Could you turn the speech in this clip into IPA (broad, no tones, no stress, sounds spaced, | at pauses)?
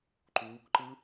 ǃ uː k ǃ ɯ